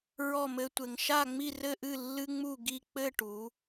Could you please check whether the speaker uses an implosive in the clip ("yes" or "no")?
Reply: no